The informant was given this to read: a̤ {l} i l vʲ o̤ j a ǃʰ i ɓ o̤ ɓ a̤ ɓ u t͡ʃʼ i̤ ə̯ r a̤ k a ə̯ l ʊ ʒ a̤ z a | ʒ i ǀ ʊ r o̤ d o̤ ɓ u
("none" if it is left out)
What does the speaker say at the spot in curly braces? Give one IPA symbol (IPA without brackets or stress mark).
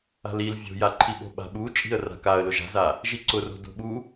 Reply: l